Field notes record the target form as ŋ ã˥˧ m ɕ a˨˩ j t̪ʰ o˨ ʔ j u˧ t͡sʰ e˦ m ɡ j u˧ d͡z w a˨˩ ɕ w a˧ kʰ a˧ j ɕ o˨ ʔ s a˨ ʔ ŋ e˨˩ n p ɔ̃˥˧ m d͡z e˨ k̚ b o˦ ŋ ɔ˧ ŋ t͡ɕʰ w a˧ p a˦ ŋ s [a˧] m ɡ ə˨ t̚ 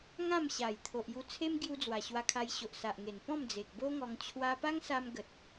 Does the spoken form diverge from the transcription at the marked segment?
no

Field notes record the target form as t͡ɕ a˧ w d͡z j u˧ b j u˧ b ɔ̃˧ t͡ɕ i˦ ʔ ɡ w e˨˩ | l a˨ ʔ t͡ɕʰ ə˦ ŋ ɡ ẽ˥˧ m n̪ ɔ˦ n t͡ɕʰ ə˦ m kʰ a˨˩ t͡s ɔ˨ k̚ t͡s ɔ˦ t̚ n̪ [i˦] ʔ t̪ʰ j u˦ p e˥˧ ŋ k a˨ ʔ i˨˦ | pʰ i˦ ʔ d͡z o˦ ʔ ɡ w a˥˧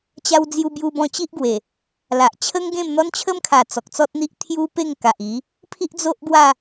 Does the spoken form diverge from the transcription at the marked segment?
no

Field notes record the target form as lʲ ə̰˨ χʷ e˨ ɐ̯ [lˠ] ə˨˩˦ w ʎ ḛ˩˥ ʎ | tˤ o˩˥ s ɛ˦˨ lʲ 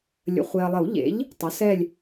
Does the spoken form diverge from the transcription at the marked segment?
no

